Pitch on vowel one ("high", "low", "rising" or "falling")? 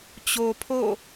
low